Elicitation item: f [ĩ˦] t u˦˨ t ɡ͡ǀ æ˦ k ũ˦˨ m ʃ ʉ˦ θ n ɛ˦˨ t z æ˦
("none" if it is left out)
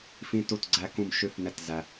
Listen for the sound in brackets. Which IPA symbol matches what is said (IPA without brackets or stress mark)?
ĩ˦